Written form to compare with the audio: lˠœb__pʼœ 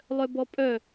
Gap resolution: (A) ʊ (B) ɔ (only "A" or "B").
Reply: B